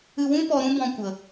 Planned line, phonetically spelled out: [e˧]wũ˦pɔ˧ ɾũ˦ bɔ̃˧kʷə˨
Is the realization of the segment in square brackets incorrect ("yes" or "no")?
yes